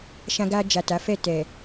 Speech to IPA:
ʃã˧ɡa˧d͡ʒa˨ ta˨˦fɛ˦˨tɛ˨

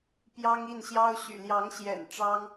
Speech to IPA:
pjɑ˥ŋi˥˩nɕjɑ˥ʊ̯ ɕy̰˨˩ljɑ˧˥ŋɕjɛ̰˨˩n ʈ͡ʂɑ˥ŋ

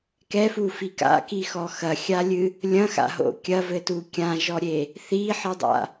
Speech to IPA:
kɛfufi ka̰kixɔ xɐxʲalʲɨ | lʲɐ̃xa̰ɦo̰ kʲɐvɘtu kʲãʒɔɾʲe | θiħɨdˤa̰

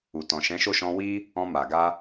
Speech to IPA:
u˨tɔ̃˨ ʃɛ̃˨˦ʃo˦˨ʃɔ̃˧ wi˦ | ɔ̃˧ma˨ɡa˧

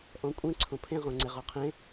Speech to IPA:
ʔɔ̃kʷʼẽ ǀʰõpʰẽ ʁõŋ͡ǀeʁɔqʰẽ

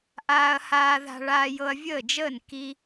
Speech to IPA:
ʔaː˧ɐ̯haː˧ða̤˧ɭaː˧ jɤ˧ɐ̯vʲəː˥˩d͡ʒəː˥˩n ki˧

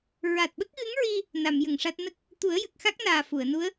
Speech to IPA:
ɹa˨˩t̚ɓə˦˥k̚ɣɨ˧˥ŋɹi˧ | na˨˩˨mjə˨˩˨ŋʂa˦˥t̚ nə˦˥k̚ | t̪u˨˩˦ə̯jə˨˩k̚xa˦˥k̚ naː˨˩ fu˨˩˨ə̯nu˧˥ə̯

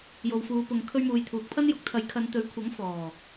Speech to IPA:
jo˨wfuː˨˧ pʊ˧ŋkʰɵ˥ɥ muː˨jt̪ʰuː˨k̚pʰɐ˥njʊ˨˥k̚ t̪ʰɐ˨˧j kʰɐ˨˧nt̪ɵ˨˥ɥkʷʰɐ˨˥ŋ fɔː˨˩

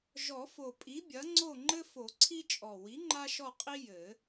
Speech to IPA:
ʒɔ˨˩˦fo˨˩pʼi˨˥bʲɐ˨˥ ŋ͡ǀo˦˨ŋ͡ǃɘ˦fo˨˩˦ǀʰi˦ t͡ʃʼɔ˨˩ wi˨˥ŋ͡ǃa˦ʃɔ˦˨qʼi˦ jɘ˨˩˦

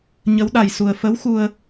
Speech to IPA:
ɲə˧˥w ɗa˨˩jsu˨˩ə̯fə˧˥w xu˧ə̯

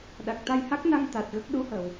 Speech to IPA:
ɗa˨˩k̚t̪a˧jha˦˥k̚na˧ŋ t̪a˨˩t̚ ɣə˦˥k̚ ɗu˧˥həː˨˩˨w

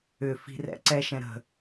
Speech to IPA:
ʏfi̤ rɛ̰ǀɛʃɛ̃ ɾə̤

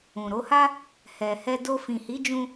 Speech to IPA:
ũ˨ɾo˨˦ha˦ | hɛ˨hɛ˧ do˧fĩ˨hi˨˦ d͡ʒũ˦

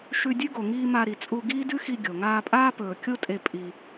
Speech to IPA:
ʃʉ˧ dʲʉ˦ɡo˨ ŋiː˧ ma˧ɾi˨t͡sʼu˧ ɡiː˦dʉ˦xi˧ ɡʲo˨ ŋaː˧pʼaː˦pɵː˨ kʲo˦tʼe˧ pʼi˧

